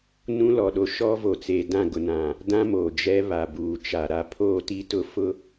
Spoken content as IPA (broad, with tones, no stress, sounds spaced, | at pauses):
n ũ˦ l ɔ˨ ɗ o˦ ʃ ɔ˦ v o˨ t͡s eː˨ d ã˦˨ ɡ ʊ˨ n ã˨ | d ã˦ m oː˨ d͡ʒ ɛ˦ β a˨ b uː˨ t͡ʃ a˨ ɾ a˨ pʰ o˦˨ t i˦ t ʊ˦ f ʊ˦